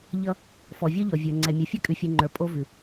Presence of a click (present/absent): present